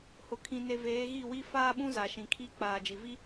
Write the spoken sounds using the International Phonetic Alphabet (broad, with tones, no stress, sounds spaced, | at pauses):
h ʊ˨ kʰ ĩ˨ n e˨ v eː˨˦ ɣ i˦˨ w i˦ f aː˦ ɓ ũ˦ z a˨ ʃ ĩ˨ kʰ i˦ k͡p aː˨ d͡ʒ i˨ v i˦